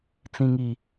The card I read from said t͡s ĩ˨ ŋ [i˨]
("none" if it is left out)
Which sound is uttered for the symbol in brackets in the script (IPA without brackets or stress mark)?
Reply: i˨